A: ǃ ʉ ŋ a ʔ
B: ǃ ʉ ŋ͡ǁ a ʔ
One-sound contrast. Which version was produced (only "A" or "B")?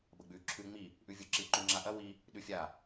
B